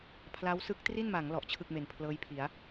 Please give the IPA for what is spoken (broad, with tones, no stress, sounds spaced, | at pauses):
pʰ l a˦˥ w s ɯ˦˥ k̚ t r i˥˩ n m a˩˦ ŋ l ɔ˨˩ ʔ t͡ɕʰ ɯ˥˩ k̚ m e˨˩ n pʰ l ɤː˦˥ j pʰ i˩˦ a̯